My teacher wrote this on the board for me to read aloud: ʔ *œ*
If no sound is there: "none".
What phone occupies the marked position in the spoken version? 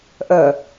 œ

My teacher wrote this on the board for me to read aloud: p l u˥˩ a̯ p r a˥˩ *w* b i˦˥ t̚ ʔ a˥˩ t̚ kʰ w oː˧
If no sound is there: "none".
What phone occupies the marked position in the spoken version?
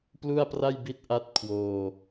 j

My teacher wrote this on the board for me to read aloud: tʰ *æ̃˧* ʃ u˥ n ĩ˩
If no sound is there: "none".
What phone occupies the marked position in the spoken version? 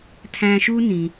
æ̃˧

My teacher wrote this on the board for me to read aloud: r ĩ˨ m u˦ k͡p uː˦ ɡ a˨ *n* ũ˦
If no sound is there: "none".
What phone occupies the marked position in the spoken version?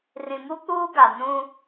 n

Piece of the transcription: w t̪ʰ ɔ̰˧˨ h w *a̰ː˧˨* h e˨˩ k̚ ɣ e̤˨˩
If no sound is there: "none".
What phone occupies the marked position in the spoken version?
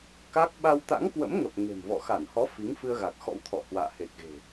a̰ː˧˨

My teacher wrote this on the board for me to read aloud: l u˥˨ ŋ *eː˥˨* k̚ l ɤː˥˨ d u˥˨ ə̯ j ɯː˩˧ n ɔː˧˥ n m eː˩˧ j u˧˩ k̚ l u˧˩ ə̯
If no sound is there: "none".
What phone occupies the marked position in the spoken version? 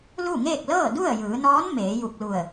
eː˥˨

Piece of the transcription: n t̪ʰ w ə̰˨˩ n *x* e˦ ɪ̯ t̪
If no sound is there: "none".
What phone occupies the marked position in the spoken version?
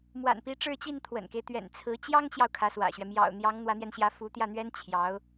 k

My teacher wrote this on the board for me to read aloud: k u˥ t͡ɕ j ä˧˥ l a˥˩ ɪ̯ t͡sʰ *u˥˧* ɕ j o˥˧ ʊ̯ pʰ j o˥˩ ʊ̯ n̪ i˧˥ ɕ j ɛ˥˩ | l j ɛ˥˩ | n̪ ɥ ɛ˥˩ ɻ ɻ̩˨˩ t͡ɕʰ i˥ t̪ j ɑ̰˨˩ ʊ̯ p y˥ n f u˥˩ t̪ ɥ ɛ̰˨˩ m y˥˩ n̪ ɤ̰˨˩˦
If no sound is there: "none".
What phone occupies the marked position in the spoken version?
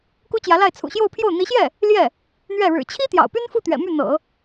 ṵ˨˩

